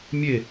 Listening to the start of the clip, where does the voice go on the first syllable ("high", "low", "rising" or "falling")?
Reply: falling